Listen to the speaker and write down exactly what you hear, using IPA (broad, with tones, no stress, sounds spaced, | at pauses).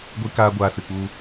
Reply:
ɡʷ i˧ k aː˧ ɡʷ aː˧ s ɨ˨ k͡p u˧